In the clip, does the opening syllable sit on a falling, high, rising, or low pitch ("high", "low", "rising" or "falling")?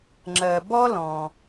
low